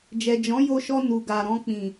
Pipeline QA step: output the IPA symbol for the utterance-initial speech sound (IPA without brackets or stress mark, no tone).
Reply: d͡ʒ